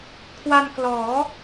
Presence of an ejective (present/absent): absent